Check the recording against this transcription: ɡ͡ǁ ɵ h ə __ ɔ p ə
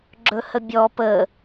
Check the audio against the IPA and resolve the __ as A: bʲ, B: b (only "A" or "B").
A